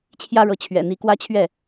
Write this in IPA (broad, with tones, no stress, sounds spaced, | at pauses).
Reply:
t͡ɕʰ j ä˦ ɻ ɤ˨˦ t͡ɕʰ ɥ ɛ̰˨˩ n̪ i˨˦ k w ä˦ t͡ɕʰ ɥ ɛ˥˨